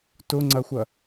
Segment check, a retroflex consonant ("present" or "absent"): absent